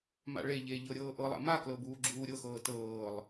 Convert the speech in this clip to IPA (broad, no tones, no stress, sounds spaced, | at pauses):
m a̰ ɭ e ʎ eː ʎ ɤ ɾʲ ɤː ʔ ɤ lˠ a̰ m a k l ɤ b uː ɡ͡ǁ uː ɾʲ ɤ x ɤː t ɤː lˠ